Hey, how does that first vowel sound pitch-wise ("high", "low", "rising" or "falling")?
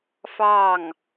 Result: falling